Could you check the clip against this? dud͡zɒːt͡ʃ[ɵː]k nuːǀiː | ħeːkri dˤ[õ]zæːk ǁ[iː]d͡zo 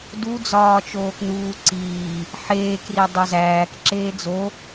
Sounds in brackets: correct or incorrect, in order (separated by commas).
incorrect, incorrect, incorrect